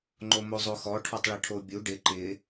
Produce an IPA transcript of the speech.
ŋ͡ǃ o m o zˤ o x ɔ ʈʰ ɔ tˤ ɭ ɪ ʈʰ o bʲ u ɖ ɪ ǃ ɪ

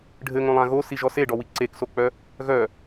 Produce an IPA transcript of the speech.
ɖʱ ɘ ŋ õ lˠ ã ɣ o s i ʒ ɔ s e ɖ ɔ w i ǀ e k s o k͡p œ | ɣ œ

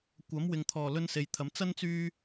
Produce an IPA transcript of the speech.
kʷ ɐ˨˥ m w ɪ˨ ŋ t̪ʰ ɔː˨˩ l ɵ˥ n s e˨ j t̪ʰ ɐ˨˥ m t͡s ɐ˥ n t͡s yː˧

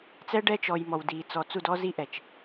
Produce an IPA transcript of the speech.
t͡s ɛ˦ ɖ ɛ˦ t͡ʃ ɔ˨ j m ɔ˨ w d iː˨ t͡s ɔ˨ t͡s u˦˨ d ɔ˦ z i˦ ʔ ɛ˨ t͡ʃ

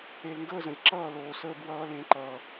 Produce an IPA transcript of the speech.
e˨ l ŋ ɡ əː˦˨ z ə̃˨ lʲ ǁ ʌː˦˨ l oː˨ s əː˧ b w ʌː˧ l ẽ˨˦ ǃ ʌː˨

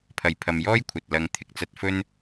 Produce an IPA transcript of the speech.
pʰ ɐ˨ j pʰ ɐ˨ m j ɔː˥ j kʷʰ ɐ˨ t̚ l ɐ˨˧ ŋ t̪ʰ ɪ˨ k̚ t͡s ɐ˧ t̚ f ɵ˥ n

